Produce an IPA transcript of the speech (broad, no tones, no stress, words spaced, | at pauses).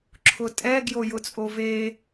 ǁʰʊtʼɛ ɡjojʊt͡sʼove